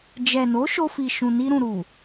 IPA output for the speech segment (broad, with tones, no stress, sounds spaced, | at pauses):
d͡ʒ ɛ˨ n o˨˦ ʃ o˧ f i˨ ʃ ũ˨ n i˧ ɾ ũ˨ ɾ u˨